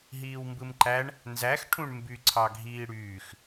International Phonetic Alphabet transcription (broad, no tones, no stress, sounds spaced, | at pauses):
ɦ iː w m b ɯ m ǃ æ ɳ | n z æ x ʈʰ ũ ɳ m b y ǀʰ ɑ ɡʱ iː ɽ yː x